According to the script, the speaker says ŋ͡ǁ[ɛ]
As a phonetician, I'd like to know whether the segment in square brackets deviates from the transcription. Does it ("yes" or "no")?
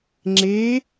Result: yes